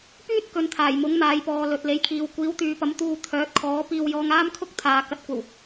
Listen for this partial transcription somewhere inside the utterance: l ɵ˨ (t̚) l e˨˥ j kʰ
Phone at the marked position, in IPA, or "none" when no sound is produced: t̚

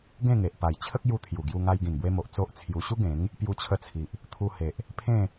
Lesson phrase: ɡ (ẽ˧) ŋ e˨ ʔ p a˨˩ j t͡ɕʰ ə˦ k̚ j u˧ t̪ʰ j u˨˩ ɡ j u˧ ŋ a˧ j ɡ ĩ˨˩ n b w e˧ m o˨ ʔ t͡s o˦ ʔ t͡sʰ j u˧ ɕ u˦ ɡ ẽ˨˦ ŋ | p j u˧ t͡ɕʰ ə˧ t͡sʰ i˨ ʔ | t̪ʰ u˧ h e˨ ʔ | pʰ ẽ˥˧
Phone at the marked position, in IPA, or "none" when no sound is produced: ẽ˥˧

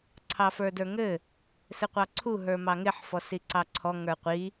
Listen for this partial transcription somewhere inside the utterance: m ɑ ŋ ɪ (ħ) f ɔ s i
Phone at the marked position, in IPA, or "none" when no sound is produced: ħ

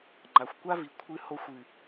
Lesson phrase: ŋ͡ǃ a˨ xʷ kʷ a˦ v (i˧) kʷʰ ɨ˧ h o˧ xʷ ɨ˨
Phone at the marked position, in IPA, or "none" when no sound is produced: i˨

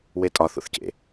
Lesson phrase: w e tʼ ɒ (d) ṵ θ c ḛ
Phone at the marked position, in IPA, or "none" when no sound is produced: θ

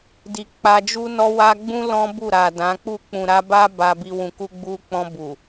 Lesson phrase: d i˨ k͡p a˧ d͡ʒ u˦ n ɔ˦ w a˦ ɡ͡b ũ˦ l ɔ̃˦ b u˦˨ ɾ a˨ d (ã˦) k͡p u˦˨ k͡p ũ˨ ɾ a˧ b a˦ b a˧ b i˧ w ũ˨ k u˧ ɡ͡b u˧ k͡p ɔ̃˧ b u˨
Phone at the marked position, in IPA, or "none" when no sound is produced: ã˨˦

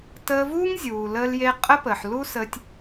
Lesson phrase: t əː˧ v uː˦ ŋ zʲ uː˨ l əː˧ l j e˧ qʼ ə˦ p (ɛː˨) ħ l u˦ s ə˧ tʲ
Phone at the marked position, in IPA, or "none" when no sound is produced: əː˨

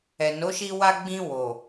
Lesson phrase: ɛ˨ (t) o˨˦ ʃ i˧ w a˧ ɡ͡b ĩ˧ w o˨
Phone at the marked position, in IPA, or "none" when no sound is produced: n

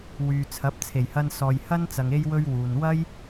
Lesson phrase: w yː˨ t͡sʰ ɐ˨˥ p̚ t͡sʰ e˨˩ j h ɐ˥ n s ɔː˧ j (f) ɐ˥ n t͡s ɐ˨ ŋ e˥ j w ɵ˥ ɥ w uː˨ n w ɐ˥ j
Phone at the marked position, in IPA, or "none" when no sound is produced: h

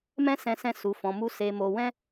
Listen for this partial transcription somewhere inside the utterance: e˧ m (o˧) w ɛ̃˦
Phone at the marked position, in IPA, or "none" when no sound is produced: o˧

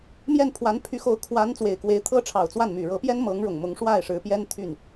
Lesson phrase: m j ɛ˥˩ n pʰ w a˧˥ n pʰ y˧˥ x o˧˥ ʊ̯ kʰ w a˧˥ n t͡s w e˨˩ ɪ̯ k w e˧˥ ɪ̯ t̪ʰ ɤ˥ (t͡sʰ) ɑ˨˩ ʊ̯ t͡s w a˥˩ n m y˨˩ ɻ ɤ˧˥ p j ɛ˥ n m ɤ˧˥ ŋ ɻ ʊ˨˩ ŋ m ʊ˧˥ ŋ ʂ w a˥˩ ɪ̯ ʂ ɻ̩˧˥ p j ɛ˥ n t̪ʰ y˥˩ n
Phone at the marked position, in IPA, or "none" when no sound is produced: ʈ͡ʂʰ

